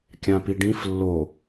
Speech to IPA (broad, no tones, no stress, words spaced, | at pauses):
kʲãpiɖĩf lːo